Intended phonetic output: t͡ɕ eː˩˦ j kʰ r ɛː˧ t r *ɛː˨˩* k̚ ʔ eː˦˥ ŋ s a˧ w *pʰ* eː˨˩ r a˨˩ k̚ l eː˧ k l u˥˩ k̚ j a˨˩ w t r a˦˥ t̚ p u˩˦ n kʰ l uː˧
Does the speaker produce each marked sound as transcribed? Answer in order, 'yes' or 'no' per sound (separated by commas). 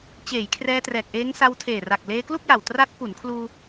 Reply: yes, no